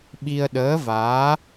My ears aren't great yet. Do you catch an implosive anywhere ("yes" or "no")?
yes